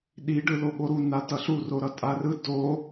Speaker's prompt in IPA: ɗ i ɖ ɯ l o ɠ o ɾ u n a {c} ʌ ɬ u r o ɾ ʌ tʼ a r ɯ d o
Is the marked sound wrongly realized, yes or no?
yes